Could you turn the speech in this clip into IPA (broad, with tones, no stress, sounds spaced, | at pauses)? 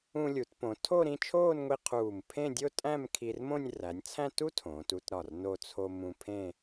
ũ˧ lʲ u˩˧ t p õ˩˧ tʰ o˥˧ ɾ ĩ˥˧ t͡ʃʰ oː˥˧ n ŋʷ i˧ qʰ uː˧˩ m pʰ ẽ˥˧ dʲ o˥ tʼ æ̃˥˧ m kʰ i˧ r m õ˥˧ nʲ r æ˩˧ nʲ t͡sʰ æ̃˥˧ t u˥ tʰ õː˩˧ t u˥˧ t ɾ ɒ˧˩ r n o˧ t͡sʰ o˧ m ũ˧ pʰ ẽ˥˧